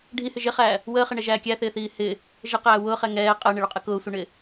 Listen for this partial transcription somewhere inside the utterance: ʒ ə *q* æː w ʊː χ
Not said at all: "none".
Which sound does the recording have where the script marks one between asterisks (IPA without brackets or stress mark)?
q